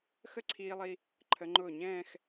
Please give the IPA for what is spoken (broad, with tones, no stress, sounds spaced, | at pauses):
x ə˥˧ ǀʰ iː˧ lˠ i˧ | ǃʰ ə˩˧ ŋ͡ǃ ʊː˧˩ ɲ ɛ̃ː˥˧ x